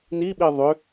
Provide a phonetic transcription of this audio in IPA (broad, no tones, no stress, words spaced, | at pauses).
niɓi ðˤʏ